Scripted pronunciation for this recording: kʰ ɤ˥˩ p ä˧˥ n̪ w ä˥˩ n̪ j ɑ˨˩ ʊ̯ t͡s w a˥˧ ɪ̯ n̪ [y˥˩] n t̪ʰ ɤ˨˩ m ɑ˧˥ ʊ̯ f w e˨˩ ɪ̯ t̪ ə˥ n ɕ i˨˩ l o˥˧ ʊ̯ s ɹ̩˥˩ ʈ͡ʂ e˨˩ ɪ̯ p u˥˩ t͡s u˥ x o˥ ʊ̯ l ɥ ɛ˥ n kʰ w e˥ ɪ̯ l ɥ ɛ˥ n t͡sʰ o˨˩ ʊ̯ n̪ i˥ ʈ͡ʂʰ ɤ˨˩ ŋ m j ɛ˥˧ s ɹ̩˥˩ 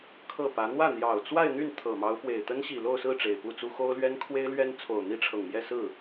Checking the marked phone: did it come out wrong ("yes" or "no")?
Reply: no